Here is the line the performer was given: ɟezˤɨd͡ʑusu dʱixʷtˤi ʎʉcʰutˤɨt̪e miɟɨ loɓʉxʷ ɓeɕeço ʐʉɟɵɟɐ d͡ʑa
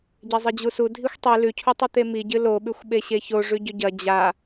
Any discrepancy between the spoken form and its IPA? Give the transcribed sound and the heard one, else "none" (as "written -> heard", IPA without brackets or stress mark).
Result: ʎ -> l